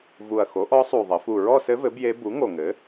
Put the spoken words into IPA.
vu˨˩ɐ̯xo˩˥ʔɔ˧˥sˤu˨˩ ðˤə˩˧fu˨˩ ɹɔ˥˧sɘ˧˥vɘ˩˥ bje˧˥ bu˩˥ ŋo˨˩ŋɘ˩˥

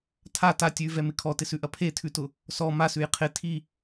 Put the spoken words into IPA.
tʰa ta tʲʉvɛmɪ kʰɔtɪsʉʔɐ pʰetʰʉtʊ | sɔ masʉj qʰɪ tʰi

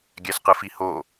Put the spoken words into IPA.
ɡʲæsqɯfiho

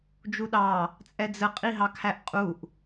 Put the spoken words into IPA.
d͡ʒuɗɑ | t͡sʼɛd͡zə qʼiɦɑkʰæʔqʼuʔ

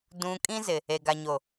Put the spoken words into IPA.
dũ˨ kʼĩ˦zɪ˨ | e˨ɡa˨ɲo˨

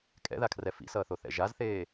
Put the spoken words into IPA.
kʼɛ̰ðakʰrɛ fḭsʌːθoθɛ̰ ʒazθeː

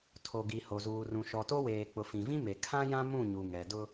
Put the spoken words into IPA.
tʰo˨ɡi˨ho˨ zuː˨rũ˨ ʃɔ˨to˦weː˨ k͡pʊ˨fĩ˨vĩ˦me˨ kʰã˦jã˦ mũ˦˨ɲu˨ŋɛ˨dʊ˦

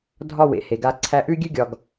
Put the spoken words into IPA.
dʱɒ˦˨wḛ˨ he˨ɡa˧ ǀʰæ˧ʔʉ˦ɡʲʉ˦ ɡʲɒ˨ɡ

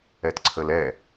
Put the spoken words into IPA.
ɛtǀʰəlɛ

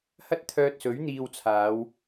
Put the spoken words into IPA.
hɐ˥t̚t̪ʰœː˧t̚sɵ˨˥ɥ n̪iː˧wt͡sʰaː˨˧w

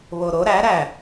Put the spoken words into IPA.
βoɾo ɾæ ɾæ

